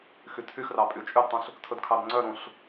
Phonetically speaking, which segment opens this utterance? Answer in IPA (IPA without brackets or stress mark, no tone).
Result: x